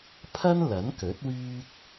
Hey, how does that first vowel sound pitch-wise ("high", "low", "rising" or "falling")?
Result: high